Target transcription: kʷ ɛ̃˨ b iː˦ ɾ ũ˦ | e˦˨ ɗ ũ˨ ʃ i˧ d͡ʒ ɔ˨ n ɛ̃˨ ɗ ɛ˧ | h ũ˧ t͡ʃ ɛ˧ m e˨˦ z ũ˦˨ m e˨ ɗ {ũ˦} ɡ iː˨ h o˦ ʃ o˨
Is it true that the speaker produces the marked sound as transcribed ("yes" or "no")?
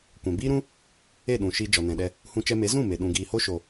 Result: no